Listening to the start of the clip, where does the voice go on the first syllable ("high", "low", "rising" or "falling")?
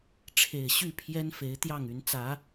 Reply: low